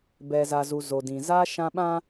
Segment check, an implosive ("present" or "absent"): present